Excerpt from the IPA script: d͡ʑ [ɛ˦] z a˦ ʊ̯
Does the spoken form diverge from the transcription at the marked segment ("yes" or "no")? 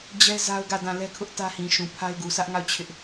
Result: no